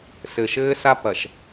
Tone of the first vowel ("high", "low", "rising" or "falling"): low